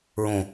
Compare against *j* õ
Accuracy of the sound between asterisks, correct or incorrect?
incorrect